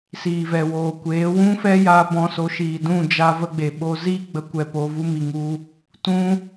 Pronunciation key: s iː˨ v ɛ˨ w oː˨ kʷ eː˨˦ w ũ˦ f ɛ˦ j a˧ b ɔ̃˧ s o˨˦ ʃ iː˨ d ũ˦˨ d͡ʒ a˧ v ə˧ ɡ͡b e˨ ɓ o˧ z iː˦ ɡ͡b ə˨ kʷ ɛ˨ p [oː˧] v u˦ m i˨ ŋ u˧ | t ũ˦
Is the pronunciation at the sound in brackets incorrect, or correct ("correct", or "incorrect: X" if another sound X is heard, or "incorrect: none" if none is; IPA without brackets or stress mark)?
correct